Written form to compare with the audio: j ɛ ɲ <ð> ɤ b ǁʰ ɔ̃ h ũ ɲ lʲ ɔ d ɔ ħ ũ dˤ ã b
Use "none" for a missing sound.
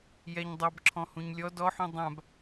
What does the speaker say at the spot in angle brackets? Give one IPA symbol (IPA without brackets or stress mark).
dˤ